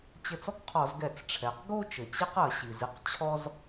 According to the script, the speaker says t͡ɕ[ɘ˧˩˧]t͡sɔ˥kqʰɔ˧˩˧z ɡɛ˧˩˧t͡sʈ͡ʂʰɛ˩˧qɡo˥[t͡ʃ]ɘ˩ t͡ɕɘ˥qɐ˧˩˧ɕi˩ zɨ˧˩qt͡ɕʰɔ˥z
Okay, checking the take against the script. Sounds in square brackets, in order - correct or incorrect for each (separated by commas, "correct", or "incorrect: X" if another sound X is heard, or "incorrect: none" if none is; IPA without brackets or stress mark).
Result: incorrect: ɘ˧˩, correct